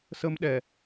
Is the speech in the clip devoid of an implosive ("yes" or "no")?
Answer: no